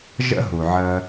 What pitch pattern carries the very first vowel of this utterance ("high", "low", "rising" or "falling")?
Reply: high